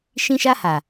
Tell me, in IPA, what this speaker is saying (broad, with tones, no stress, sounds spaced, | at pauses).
ʃ ĩ˦ ʃ a˦ h a˨